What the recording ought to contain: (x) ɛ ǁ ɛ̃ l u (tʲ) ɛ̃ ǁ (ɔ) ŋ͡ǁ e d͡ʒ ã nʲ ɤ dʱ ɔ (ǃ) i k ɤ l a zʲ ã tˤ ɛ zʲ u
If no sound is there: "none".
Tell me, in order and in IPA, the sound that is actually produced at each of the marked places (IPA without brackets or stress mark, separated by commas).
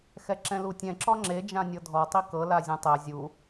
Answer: x, tʲ, ɔ, tˤ